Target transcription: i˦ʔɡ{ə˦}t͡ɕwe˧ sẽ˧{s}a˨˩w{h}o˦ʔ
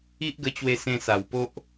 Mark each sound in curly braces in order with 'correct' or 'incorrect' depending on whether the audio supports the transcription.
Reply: incorrect, correct, incorrect

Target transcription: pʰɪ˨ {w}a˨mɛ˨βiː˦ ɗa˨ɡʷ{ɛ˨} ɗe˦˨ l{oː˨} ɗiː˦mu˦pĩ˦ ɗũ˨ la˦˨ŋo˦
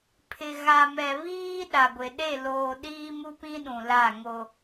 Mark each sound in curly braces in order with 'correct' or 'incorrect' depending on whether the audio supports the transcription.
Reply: incorrect, incorrect, correct

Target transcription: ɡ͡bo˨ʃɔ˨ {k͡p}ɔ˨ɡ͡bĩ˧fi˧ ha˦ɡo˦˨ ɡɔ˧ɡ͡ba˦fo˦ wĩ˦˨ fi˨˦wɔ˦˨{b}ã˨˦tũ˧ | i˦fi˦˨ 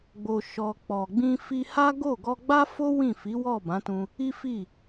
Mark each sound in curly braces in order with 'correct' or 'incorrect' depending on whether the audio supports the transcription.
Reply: correct, correct

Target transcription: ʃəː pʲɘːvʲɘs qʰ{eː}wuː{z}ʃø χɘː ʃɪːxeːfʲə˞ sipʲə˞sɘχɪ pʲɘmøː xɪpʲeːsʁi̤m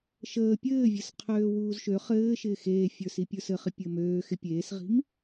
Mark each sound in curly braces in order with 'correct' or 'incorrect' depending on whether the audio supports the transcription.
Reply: incorrect, correct

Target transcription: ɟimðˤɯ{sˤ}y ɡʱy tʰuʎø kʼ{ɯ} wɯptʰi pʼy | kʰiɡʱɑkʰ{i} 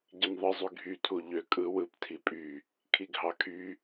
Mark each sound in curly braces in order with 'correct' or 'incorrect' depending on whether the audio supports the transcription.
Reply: incorrect, correct, incorrect

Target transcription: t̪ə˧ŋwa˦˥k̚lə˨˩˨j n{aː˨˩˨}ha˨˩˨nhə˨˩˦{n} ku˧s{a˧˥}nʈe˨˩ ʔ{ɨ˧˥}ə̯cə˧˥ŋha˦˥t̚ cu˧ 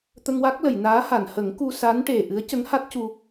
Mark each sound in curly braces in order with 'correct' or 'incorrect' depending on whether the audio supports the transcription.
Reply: incorrect, incorrect, correct, correct

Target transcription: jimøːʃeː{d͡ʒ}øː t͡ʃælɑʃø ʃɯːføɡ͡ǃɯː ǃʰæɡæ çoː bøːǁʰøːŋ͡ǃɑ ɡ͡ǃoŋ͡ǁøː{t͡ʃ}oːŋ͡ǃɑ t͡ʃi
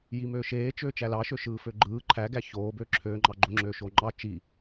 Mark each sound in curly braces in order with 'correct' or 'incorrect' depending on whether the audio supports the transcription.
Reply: incorrect, incorrect

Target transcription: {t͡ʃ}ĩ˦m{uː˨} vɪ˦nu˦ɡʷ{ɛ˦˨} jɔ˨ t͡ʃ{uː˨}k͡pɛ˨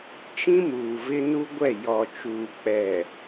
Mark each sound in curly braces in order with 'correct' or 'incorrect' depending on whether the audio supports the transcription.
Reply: correct, correct, correct, correct

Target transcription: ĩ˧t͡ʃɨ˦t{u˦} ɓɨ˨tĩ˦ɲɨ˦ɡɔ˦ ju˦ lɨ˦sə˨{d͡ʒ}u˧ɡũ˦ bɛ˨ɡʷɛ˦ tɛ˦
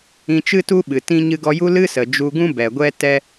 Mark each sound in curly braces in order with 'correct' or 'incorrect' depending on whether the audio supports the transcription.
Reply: correct, correct

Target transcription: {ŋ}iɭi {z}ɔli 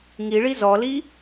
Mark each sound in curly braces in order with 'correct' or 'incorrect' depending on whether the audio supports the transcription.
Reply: correct, correct

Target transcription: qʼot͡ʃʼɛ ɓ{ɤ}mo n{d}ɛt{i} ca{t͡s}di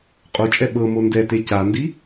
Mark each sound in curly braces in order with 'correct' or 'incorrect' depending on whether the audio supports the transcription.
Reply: correct, correct, incorrect, incorrect

